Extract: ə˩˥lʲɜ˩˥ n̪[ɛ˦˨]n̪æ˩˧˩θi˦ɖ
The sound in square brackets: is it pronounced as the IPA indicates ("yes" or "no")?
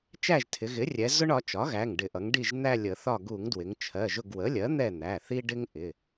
yes